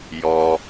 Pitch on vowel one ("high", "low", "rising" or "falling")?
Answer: low